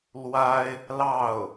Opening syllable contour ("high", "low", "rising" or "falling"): high